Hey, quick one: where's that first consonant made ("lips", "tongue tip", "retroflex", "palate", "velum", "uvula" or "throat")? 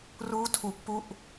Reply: tongue tip